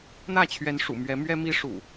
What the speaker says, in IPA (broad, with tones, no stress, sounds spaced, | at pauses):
n̪ ä˥˨ t͡ɕʰ ɥ ɛ˨˦ n ʂ ṵ˨˩ m ɥ ɛ˨˦ m ɥ ɛ˦ m i˦ ʂ ṵ˨˩